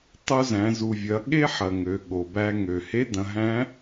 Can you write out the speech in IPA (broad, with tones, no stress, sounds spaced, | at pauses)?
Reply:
tˤ u˧ z æ̃˩˧ z u˩ vʲ ɐ˩˧ ɠ e˥ ħ ɐ˩ ŋ ø˩˧ ɠ o˩ b æ˧ ŋ ø˩ h e˧˥ d ɐ̃˩˧ ɦ æ̃˧˥